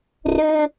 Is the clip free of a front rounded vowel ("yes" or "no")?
no